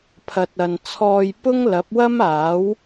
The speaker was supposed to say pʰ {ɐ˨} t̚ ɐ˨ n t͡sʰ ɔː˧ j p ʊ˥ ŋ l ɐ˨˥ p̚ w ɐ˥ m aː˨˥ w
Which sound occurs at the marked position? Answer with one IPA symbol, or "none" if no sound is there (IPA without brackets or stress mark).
ɐ˨